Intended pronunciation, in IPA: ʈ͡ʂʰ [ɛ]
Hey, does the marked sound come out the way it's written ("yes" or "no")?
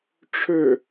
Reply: no